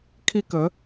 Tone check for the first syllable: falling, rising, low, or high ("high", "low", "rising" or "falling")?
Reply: high